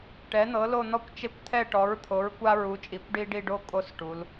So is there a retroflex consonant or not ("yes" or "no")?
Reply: yes